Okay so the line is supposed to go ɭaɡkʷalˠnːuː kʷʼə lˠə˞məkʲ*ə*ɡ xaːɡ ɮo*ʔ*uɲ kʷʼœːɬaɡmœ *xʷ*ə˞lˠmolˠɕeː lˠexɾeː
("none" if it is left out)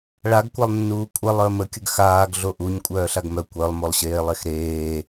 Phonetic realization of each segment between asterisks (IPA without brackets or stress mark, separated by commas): ə, ʔ, kʷ